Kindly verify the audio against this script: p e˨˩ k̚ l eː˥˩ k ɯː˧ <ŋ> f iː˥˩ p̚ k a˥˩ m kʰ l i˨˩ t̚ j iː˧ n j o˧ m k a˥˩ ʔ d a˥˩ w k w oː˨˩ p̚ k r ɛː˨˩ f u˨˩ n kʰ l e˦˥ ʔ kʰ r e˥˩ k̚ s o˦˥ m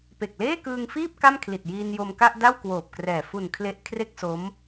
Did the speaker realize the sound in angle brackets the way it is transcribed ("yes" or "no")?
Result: yes